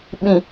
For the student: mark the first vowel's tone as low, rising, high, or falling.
low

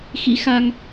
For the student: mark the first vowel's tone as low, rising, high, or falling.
rising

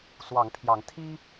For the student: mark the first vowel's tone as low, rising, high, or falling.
rising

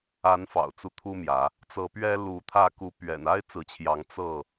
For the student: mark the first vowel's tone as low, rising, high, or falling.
rising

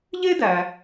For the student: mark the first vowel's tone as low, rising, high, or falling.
high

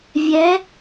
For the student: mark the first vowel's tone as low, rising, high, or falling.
rising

